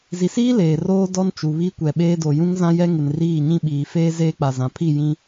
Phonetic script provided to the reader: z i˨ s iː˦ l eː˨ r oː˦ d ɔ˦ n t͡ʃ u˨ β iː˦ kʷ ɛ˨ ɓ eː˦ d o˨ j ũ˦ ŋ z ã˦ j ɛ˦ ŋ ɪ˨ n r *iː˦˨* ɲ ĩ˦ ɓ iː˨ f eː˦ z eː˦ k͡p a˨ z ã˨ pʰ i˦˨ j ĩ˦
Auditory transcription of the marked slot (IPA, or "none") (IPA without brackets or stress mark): iː˦˨